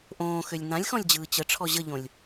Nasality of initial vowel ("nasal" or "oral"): nasal